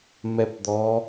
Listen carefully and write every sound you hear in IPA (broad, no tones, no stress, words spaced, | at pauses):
mɛpd̪ɔ